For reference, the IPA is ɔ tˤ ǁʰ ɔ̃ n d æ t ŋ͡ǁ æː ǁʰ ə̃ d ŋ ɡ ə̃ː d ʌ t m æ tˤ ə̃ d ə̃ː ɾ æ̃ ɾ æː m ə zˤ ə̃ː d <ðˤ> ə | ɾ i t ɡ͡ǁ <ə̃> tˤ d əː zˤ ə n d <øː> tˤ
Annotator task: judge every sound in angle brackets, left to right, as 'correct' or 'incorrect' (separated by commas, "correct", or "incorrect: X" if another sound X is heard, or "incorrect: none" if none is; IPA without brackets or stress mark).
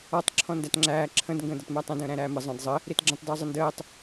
incorrect: zˤ, correct, incorrect: əː